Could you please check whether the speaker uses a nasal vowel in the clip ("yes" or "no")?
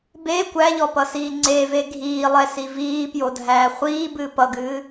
no